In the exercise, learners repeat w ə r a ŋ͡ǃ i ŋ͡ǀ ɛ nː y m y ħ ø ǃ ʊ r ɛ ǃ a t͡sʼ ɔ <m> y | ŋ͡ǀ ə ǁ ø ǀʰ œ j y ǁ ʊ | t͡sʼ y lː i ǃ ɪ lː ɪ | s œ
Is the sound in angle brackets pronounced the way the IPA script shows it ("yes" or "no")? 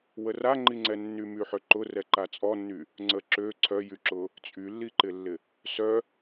no